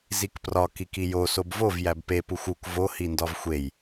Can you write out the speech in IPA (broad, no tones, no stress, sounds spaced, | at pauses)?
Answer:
z i k p r ɒ k i k i j o s o b v o v j æ b p e p u xʷ u k v o h i n d ɒ v xʷ e j